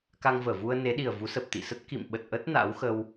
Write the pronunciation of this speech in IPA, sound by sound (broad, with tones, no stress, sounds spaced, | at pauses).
k a˧ ŋ v əː˧˩ v u˧ ə̯ n e˨˦ ɗ i˨˩ ə̯ v u˨˦ s ə˨˩ p̚ t̪ ḭ˧˨ s ə˦˥ t̚ k ḭ˧˨ m ɓ ə˨˩ t̚ ʔ ə˦˥ t̚ n a̰ː˧˥ w x ə˧ w